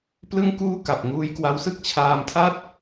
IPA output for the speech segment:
p l ɯ˥˩ ŋ k uː˥˩ k a˨˩ p̚ ŋ uː˦˥ j k w a˦˥ w s ɯ˥˩ k̚ t͡ɕʰ aː˧ m tʰ a˥˩ t̚

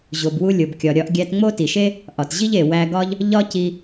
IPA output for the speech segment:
ʑ o˩ b w u˧ lʲ o˩ b kʲ ɒ˩ ɾʲ ɒ˧ ʔ ɡʲ æ˧ t ŋ͡m o˥ t i˩ ʃ e˥ | ʔ ɒ˩ t ʑ i˥ ʎ e˩ w æ˧ ɡ ɒ˥ ʎ | ʎ ɒ˥ c i˧

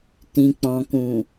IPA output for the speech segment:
t ĩ˨ k͡p ɔ̃˨ k ũ˨

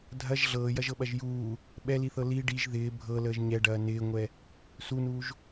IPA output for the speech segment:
dʱ ɐ ʒ ɮ ɤː j ɐ ʒ ɤ ɓ ɐ ʒ j uː | ɓ ɛ l i θ ɤ l i ɖ i ʒ ð ɪː bʱ ɤ l əː ʒ ɲ ɛ ɖ ɐː n ɪː ŋʷ ɛ | s u n uː ʒ

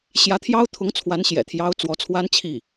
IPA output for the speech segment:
ɕ j ä˧˥ t̪ʰ j ɑ˥ ʊ̯ t̪ʰ ʊ˧˥ ŋ t͡sʰ w a˧˥ n ɕ j ɛ̰˨˩ t̪ʰ j ɑ˧˥ ʊ̯ t͡s w ɔ˧˥ t͡sʰ w a˥ n t͡ɕʰ i˥˩

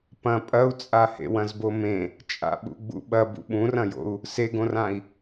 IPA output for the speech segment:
p ɐ̃ pʼ ɐ u̯ t͡sʼ a h ḛ w ɐ̃ z b o m ẽ | t͡ʃʼ a̰ ɓ ṵ ɡ͡b ṵ ɓ ɐ b ṵ ɓ ũ r ɐ̃ j o̰ u̯ | s e ɡ õ r ã i̯

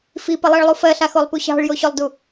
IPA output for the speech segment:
f i p ə lˠ ɜ ɭ lˠ u f ɜ ɬ a x o lˠ p u ɕ ɑ̤ ɭ j o ɕ o lˠ d u

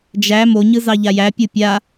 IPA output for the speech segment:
d͡ʒ æ m o ɲ ɯ z ɑ ʎ a j æ pʲ ɯ pʲ a

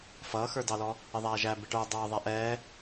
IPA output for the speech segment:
f ʌː x ə˞ d ɑ l ɔ | ɪ ðˤ æː ʒ æ b ɪ ʈ ə˞ dˤ ʌː ðˤ æ ʔ ɛː

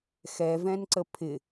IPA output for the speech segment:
x ɛ v ɛ̃ n ǀ ə pʰ ɪ

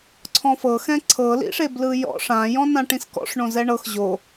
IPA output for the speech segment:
ǀʰ ɔ̃ f ɤ x ɛ̃ ǀʰ ɤ l ḭ ʂ e b l ɯ j ɔ̰ ʂ ã j ɔ̃ n ã ʈ ĩ s k ɔ̰ ʂ ɳ õ z ɛ ɳ ɤ x ʑ o

